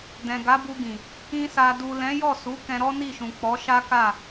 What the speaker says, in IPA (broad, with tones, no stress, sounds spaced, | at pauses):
d ɛ̃˨ ɡ a˨˦ b u˧ ɡ ĩ˨ | ĩ˧ s a˨ d u˨ l ɛ̃˨˦ j ɔ˦˨ s u˨˦ k ɛ̃˧ ɾ ɔ˦ n i˦˨ ʃ ũ˨ k͡p ɔ˨˦ ʃ a˦ k a˦˨